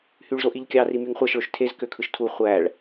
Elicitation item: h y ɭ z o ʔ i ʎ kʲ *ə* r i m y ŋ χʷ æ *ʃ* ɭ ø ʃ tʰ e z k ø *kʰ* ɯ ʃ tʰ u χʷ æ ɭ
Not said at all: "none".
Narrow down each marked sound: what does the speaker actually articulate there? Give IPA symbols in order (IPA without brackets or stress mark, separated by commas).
ɑ, ʃ, kʰ